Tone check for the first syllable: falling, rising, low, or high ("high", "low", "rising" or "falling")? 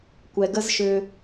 low